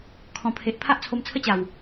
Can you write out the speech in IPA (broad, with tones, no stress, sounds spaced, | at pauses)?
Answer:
kʰ ɔ̃˨˩ pʰ e˨ ʔ pʰ a˦ ʔ t͡sʰ o˧ m t͡sʰ ə˦ t͡ɕ a˨˩ w